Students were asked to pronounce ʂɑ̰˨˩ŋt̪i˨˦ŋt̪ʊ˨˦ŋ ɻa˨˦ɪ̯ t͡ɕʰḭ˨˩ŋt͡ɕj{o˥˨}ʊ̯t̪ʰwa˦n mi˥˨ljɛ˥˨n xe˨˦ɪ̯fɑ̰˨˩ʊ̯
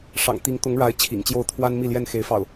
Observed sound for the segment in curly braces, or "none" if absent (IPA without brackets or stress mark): o˥˨